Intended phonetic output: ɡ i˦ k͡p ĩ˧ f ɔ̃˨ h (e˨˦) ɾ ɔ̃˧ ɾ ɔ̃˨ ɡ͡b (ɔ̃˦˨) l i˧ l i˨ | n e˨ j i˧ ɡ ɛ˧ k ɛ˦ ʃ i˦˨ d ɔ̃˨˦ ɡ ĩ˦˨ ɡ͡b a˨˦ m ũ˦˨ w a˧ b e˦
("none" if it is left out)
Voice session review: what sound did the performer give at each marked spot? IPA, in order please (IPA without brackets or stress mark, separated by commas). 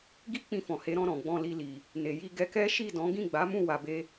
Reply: e˨˦, ɔ̃˧